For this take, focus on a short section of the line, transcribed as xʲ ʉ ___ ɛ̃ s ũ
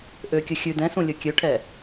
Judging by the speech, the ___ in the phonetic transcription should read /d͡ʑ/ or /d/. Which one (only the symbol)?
d